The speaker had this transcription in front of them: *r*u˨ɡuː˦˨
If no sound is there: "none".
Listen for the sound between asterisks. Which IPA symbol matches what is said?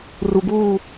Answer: r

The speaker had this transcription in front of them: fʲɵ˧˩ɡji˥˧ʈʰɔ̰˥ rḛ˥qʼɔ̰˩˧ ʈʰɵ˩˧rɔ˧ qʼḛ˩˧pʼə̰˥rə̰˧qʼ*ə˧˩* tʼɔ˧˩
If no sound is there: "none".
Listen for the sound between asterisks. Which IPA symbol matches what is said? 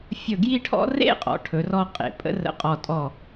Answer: ɔ˧˩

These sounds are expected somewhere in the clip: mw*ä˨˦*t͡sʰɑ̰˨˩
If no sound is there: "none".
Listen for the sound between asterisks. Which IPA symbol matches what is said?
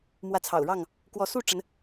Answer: ä˨˦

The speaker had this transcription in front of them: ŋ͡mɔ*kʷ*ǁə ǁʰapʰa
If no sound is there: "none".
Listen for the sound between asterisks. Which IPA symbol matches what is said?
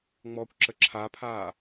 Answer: kʷ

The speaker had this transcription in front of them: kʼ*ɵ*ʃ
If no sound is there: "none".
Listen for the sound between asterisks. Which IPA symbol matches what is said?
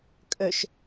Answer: ɵ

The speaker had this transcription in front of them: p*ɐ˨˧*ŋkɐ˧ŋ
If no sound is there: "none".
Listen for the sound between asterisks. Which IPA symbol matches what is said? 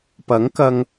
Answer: ɐ˨˥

